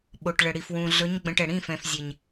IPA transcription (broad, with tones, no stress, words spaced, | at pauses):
ɓo˨ʈɭə˨ɽi˨fwũ˨ ɮɵ˨˦ɲɡ͡bə̃˨ʈ ɛ˨ɽĩ˦˨fɛ̃˨f zʲe˨ɲ